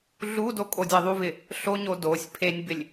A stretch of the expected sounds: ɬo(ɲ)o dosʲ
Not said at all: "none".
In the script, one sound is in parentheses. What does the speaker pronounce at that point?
ɲ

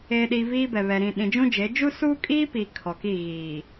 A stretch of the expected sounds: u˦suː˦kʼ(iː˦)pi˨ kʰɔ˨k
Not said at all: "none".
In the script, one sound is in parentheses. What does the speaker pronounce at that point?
iː˦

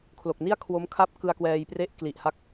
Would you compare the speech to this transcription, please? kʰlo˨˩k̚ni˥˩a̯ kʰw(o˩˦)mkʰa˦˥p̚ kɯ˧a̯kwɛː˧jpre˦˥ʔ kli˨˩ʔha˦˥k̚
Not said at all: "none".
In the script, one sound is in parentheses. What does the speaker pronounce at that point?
o˦˥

